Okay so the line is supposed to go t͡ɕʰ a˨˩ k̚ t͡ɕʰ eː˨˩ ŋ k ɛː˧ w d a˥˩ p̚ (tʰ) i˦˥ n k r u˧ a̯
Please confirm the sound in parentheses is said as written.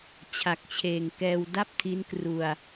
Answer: yes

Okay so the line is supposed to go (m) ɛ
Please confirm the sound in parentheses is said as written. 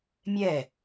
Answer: no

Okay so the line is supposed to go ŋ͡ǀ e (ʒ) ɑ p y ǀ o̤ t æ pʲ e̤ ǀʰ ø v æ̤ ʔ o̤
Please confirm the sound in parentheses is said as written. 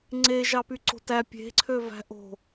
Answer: yes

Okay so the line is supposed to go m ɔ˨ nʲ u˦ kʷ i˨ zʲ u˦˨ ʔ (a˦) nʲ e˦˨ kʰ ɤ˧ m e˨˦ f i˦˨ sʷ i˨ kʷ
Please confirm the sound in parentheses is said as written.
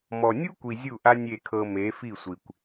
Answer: yes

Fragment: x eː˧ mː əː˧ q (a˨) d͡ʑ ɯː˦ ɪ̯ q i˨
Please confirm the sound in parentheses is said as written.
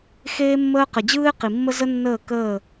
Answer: no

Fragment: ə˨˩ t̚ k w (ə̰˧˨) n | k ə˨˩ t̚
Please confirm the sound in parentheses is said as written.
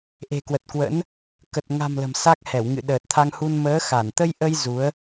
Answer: no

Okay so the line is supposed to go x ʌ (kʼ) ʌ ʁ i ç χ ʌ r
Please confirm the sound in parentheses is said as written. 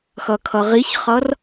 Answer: no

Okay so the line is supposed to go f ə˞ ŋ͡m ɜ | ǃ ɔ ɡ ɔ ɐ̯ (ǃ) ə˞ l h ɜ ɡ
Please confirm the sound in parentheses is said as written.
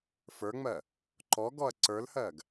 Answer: no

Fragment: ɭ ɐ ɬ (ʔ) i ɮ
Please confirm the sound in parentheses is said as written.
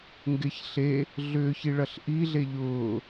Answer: yes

